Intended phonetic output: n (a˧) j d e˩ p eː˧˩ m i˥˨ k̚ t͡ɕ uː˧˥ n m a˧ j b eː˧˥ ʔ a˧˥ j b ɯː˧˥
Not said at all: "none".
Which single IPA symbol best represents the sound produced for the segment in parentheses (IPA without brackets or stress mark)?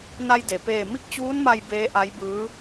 a˧